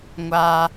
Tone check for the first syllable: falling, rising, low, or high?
high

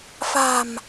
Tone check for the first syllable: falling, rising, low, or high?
low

